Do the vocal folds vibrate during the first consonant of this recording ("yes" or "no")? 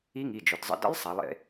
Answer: yes